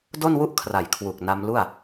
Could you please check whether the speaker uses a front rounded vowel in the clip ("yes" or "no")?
no